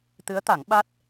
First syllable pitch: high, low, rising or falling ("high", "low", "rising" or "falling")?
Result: rising